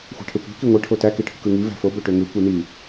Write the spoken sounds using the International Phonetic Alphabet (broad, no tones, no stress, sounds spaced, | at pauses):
xʷ æ̤ ʈʰ ø kʷ æ̤ k i ŋʷ i ʈʰ o t æ k i ʈʰ ṳ k ɯ ŋ i v æ̤ f o b ø ʈ ø ŋ ɯ kʷ i n i